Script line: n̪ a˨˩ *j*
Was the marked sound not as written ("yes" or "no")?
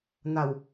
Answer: yes